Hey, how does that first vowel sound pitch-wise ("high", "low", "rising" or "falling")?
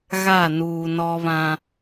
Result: falling